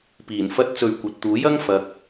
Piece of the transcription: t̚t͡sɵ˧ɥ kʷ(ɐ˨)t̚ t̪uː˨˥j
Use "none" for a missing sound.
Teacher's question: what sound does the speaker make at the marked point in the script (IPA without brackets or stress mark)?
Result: ɐ˨